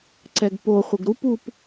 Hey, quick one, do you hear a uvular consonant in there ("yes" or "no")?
yes